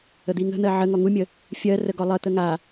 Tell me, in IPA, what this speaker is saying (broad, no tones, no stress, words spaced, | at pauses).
əd̪iŋə̤n̪ɜ ʕəŋɔ ŋumʲə | fʲɜrə ɡɔlˠət̪ə ŋa